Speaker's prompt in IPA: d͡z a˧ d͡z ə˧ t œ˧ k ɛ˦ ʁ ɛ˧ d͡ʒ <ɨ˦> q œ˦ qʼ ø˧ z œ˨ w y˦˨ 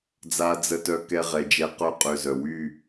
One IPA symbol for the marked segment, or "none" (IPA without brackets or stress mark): ɛ˦